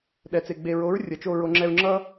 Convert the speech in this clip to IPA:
ɗɛ˨t͡se˨ ɡ͡be˨ɹo˨˦ɹ rʲʌ˨t͡ʃo˧ ɹo˧ ŋ͡ǁɛ˧ɹŋ͡ǁʌ˦

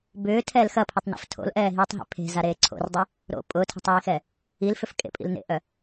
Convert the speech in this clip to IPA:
bʏːtʰɛːl xɐpʰʊtˤnḭf tʰo̰lʔɛːɦiːtˤɦḛ pʰe̤zaɾeː ǀʰo̰rdˤe | ɾo̰ pʼʊːtʰe̤tˤiːxɛ | ilfʏfkʼḛpʼḭl nḛʔœ

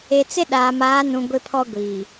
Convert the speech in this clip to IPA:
e˨t͡sɪ˦ ɗaː˨maː˨˦nũ˨ ɡʷɪ˦pʰɔ˦ɡʷiː˨

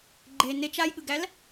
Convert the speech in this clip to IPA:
ɡ͡ǃe net͡ʃ ajɠɯɡæl

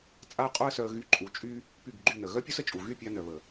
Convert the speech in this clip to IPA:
t͡sʼa˦ə̯qʼu˦ə̯sœ˧ə̯ ɣy˧ǃʼu˨˦t͡ʃʼy˦ | py˦˨ɡɡ͡ǃy˦˨nə˨ ɣœ˦pʲu˦sə˨t͡ʃʼu˨ ɣy˦˨pʲa˧nœ˨βə˨

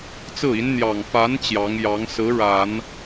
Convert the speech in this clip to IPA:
t͡sɹ̩˥˩i˧˥n n̪jɑ˨˩ŋ fa˧˥n t͡ɕjɑ˧˥ŋjɑ˧˥ŋ sɹ̩˧˥ ɻa˨˩˦n

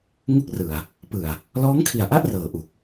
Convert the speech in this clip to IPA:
ŋu˥˩k̚rɯ˨˩a̯ | pɯ˨˩a̯ | lɔː˦˥ŋkʰi˨˩a̯ʔa˥˩ʔ rɤː˨˩ʔu˨˩k̚

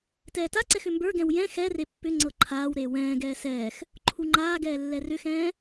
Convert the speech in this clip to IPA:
tɛːtaǀɛx ʏmbə˞ɡɛ̃w jɛ̃ xɛre pːʏ ŋ͡ǀɤǃʰaːwɾeː wɛ̃ːɡɛː sɛːx | ǃʰuŋ͡ǃaːɡɛː lːɛrʏxɛ̃ː

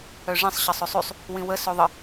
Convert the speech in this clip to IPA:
œʐĩsˤ ɕəsˤøsˤysˤ | wĩwə søðˤə

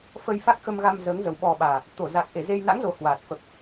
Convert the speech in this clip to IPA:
fə˧jfa˦˥k̚xə˧mɣa˧m zəː˨˦ŋzə˨˩w ɓɔ˨˩ ɓaː˨˩ | t̪o˧˩ za˨˩k̚ʔe˧˩ze˧j na̰˧˥ŋzo˨˩ hwaː˨˩t̚ fə˨˩p̚

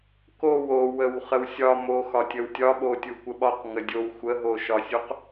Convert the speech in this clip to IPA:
kow owəw χəwsʲɒ mox ɒtʲəwtʲɒɓo tʲukʷəɓɒq ŋədʲow xʷəɦoʃɒsʲuq

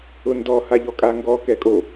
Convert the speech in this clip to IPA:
ʊndɔ haʎɔkʼaŋɡɔ kɛkʼo

